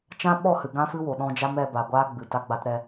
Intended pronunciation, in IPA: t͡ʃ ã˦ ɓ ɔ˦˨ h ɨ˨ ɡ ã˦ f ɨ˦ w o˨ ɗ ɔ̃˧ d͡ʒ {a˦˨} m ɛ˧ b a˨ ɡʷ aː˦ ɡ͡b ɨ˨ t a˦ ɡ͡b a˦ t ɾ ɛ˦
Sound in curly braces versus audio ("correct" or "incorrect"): incorrect